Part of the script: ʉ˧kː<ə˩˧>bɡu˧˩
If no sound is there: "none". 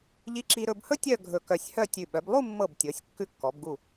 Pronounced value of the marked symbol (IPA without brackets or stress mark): ɔ˩˧